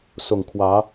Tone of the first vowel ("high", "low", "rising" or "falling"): low